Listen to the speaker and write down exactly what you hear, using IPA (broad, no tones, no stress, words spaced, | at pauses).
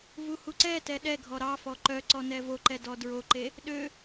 vuhuǀɛtɛ ɗɛɡʱɔ ɾɑfɔ ǃœǀɔ nɛvoǃɛ dɔdɹoǃe | ɗø